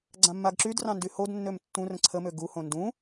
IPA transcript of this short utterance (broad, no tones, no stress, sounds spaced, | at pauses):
ɡ͡ǀ ã mː a ɡ ǁ y d r ɑ̃ n d y h o d nː ø m tː ũ r ə̃ ǀʰ ə m ø ɡ u h õ n d ũ